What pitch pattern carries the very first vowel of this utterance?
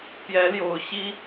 rising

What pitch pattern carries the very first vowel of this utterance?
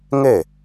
falling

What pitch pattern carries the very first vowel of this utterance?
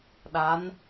rising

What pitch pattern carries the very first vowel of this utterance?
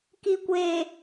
low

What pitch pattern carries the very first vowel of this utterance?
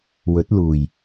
rising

